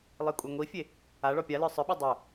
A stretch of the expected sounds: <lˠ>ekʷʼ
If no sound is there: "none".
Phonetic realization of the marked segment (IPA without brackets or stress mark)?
lˠ